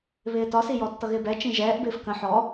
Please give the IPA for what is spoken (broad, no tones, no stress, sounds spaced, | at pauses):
β ɪː t ɒ s i j ɔ tː ʌ ɣ ɪː b ɛ t͡ʃ ĩ ʒ ɛː ʔ b ɪː f k ə̃ ħ ɔ